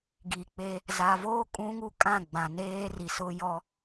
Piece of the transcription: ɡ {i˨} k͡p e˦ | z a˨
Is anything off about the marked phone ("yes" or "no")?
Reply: no